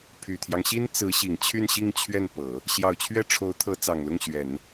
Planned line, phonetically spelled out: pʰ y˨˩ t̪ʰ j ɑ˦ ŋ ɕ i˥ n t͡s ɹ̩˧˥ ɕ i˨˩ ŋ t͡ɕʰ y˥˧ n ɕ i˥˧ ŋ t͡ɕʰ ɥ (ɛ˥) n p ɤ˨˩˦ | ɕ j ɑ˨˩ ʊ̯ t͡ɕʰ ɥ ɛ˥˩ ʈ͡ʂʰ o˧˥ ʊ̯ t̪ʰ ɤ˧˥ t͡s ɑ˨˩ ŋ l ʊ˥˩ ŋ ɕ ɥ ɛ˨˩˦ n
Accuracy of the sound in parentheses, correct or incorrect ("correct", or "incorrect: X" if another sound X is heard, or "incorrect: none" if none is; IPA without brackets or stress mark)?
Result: incorrect: ɛ˥˩